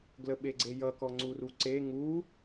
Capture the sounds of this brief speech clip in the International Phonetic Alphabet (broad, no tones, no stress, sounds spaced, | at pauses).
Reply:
ɡ l ə ɓ e ɡ͡ǀ e j ʌ k ɔ ŋ͡ǀ u r u ǀ e ŋ u